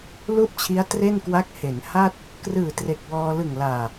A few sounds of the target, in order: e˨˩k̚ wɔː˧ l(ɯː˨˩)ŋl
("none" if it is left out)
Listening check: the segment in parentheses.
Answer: ɯ˨˩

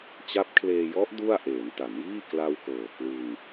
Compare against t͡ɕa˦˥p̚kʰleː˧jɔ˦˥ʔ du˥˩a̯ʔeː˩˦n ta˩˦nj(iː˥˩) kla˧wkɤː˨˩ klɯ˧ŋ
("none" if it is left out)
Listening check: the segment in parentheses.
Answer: iː˥˩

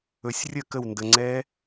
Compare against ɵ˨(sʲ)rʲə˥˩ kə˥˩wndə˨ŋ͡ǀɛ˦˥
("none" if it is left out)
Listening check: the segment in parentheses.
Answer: sʲ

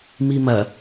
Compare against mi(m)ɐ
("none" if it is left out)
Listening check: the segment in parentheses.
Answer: m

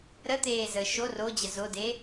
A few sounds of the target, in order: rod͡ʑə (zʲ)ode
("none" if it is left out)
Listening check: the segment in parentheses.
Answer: z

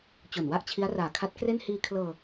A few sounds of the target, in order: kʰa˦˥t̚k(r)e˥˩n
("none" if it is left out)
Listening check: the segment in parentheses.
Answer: r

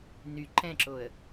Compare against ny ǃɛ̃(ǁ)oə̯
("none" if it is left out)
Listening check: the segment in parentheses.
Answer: ǁ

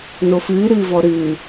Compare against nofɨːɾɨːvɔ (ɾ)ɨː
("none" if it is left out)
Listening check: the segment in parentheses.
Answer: ɾ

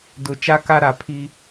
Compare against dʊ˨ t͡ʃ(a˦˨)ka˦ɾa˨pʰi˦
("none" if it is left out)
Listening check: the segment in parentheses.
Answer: a˦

